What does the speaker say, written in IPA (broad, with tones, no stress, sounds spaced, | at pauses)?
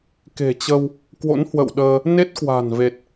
k e̤˨˩ t͡ɕ ə˧ w | k w o̰˧˥ n h w ə̰˧˨ w ɗ əː˧ | n e˦˥ t̚ k w a̤˨˩ n v e˨˩ t̚